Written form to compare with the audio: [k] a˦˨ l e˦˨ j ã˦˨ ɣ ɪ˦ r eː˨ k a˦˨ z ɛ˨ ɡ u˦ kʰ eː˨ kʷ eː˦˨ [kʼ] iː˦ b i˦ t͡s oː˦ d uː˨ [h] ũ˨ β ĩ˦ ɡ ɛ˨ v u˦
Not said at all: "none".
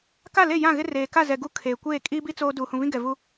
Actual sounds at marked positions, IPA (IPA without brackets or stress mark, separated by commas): k, kʼ, h